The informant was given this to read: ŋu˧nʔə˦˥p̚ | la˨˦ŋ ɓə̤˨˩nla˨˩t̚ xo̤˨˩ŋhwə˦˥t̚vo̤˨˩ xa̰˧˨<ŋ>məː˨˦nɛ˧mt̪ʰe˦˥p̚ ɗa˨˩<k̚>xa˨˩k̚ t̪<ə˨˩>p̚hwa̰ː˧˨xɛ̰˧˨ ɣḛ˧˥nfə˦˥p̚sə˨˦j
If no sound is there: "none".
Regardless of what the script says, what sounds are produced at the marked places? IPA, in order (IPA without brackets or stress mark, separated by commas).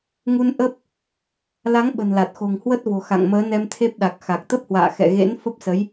ŋ, k̚, ə˦˥